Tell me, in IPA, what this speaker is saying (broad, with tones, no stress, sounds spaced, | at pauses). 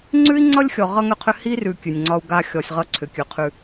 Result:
ŋ͡ǀ ʉ˦ i̯ ŋ͡ǀ ʌ˦ lʲ xʲ ɔ˨ ʁ ʌ˦ ŋ ʏ˦ qʰ ʏ˦ h i˦ r ʉ˨ kʲ ʉ˨ nʲ ŋ͡ǀ ɒ˦ u̯ ɡ a˦ xʲ ɔ˨ sʲ ʁ ʌ˦ ǀʰ ʏ˨ kʲ ʉ˨ qʰ ʉ˦